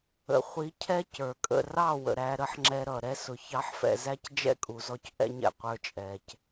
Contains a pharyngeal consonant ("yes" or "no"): yes